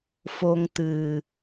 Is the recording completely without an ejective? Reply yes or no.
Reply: yes